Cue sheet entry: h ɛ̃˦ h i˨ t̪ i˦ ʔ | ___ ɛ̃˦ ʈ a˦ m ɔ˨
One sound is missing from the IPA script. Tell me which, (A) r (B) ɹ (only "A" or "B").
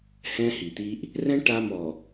A